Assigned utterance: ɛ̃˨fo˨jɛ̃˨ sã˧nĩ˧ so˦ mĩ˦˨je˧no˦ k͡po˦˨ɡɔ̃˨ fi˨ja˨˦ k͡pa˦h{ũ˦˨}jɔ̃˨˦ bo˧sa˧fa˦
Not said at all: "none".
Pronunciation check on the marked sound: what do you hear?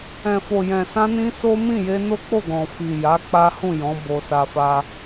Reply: ũ˦˨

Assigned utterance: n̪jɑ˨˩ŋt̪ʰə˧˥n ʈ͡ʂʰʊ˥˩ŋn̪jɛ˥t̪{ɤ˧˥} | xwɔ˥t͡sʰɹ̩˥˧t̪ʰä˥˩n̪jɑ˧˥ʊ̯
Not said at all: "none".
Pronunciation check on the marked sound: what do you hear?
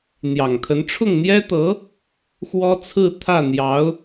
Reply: ɤ˧˥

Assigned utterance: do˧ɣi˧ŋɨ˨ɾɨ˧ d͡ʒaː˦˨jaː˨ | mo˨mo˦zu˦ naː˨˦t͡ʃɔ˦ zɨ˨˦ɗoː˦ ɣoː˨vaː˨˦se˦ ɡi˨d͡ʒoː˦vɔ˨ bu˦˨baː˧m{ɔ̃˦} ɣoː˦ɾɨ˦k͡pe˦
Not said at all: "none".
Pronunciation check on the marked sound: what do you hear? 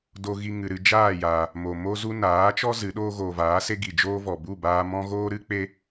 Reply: ɔ̃˦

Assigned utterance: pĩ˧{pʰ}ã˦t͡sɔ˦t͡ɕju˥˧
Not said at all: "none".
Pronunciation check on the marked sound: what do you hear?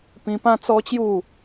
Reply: p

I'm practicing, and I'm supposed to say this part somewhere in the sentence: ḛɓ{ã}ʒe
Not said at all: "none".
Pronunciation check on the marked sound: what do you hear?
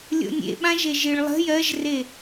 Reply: ã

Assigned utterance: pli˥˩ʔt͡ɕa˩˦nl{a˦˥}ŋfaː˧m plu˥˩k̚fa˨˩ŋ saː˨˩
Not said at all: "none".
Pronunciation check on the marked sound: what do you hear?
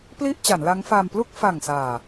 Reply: a˦˥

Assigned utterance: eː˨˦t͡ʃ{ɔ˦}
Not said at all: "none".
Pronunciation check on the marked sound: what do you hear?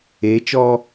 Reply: ɔ˦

